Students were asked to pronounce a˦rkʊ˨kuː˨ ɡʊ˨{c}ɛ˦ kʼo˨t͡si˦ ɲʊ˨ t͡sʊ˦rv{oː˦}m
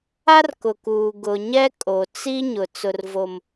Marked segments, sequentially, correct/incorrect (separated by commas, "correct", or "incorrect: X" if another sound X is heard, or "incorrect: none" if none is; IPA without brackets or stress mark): incorrect: ɲ, incorrect: o˦